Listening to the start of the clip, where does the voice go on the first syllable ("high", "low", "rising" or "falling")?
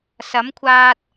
rising